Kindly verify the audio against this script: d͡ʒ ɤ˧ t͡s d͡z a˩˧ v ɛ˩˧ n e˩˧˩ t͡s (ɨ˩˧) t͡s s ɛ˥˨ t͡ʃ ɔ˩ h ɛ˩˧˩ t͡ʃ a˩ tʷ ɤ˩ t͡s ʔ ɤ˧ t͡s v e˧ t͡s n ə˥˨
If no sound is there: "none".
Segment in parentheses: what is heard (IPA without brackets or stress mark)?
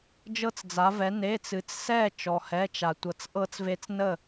ɨ˩˧